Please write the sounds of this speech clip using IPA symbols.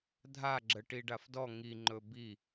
dʱ a ɡ͡ǁ ə ʈ i ɖ a f d ɔ ŋ i ŋ͡ǃ ɵ b i

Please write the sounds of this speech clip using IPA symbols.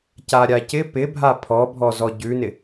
c a ɾʲ a c ɪ p ɪ bʱ a pʰ ɔ bʱ ɔ z ɔ ɟ ʉ n ɪ

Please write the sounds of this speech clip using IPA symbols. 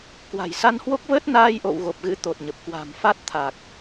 k w a̤˨˩ j s a˧ n h w o˦˥ k̚ v əː˦˥ t̚ n aː˧ j ʔ o̰˧˨ w ɣ o˨˩ p̚ ɣ ɨ̰˧˥ t̪ o˨˩ t̚ ɲ ə˨˩ p̚ k w a̤˨˩ m f a˦˥ t̚ t̪ʰ a˨˩ k̚

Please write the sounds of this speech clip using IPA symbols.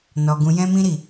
n ɔ˧ ɡ ũ˧ j ɛ̃˦ m ĩ˦ ɾ i˦˨

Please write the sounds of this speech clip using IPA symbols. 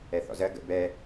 ɛ θ ɔ̰ z ɜ ɡ ə̰ b ɛ

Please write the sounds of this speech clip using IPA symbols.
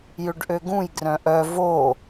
j ʏ ɖ ʔ ø ɡ ũ j ɡ r œ̃ ʔ œ v o

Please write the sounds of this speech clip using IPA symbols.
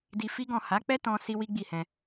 d i˧ f i˦ ɡ ɔ̃˦˨ h a˨˦ k͡p ɛ˦ t ɔ̃˦ s i˦ w i˦ ɡ͡b i˦˨ h ɛ̃˧

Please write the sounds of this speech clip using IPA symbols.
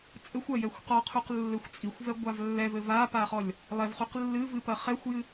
t͡sʼ ɘ xʷ ɐ j ɛ xʷ q ɔ qʰ u q lː ɘ xʷ t͡sʼ i xʷ v ɛ ɡʷ a v lː ɛ v ɘ v a p a χ ɔ lʲ | lˠ ɛ v χ u q lː ɨ v ɨ p ɐ χ ɛ xʷ j ɨ

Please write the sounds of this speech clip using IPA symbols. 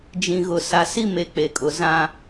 d͡ʒ ĩ˨ ɣ ʊ˨ s a˨ s i˦ m e˨ k͡p e˨ kʼ ʊ˨ z ã˦

